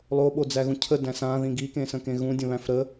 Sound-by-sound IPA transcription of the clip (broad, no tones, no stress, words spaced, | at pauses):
lˠoɓod͡zæɣũ cʰədæ̃ sãðĩ ɡikẽsə̃kẽ ɣũdʲə̃βæ̃f ɾə